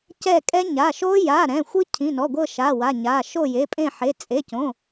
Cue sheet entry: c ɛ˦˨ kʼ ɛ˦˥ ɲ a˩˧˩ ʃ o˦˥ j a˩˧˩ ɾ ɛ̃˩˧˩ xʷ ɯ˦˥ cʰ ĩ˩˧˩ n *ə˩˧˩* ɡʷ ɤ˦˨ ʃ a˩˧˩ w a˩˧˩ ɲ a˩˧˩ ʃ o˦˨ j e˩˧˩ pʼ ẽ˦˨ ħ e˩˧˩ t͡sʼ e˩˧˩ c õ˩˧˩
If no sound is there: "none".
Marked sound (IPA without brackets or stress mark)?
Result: ɔ˩˧˩